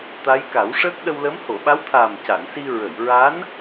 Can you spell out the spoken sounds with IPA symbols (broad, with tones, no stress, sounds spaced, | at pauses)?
t̪ a˧˥ j k a˨˩˦ w ʂ əː˦˥ k̚ ɗ ə˧ w l ə˧˥ m h o˨˩˨ ɓ a˧˥ w t̪ʰ aː˨˩ m c a˨˩˨ n s i˧ ɹ ə˨˩˨ j ɹ a˧˥ n